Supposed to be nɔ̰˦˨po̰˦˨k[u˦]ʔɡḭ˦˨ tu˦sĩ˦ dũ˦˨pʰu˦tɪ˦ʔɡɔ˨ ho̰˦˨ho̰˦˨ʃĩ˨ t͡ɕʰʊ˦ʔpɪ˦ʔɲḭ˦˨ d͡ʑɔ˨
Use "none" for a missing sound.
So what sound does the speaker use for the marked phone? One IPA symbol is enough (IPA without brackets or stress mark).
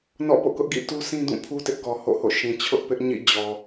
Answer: ʊ˦